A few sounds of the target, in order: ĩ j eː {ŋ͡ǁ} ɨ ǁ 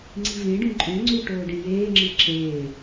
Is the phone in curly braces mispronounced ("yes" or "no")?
no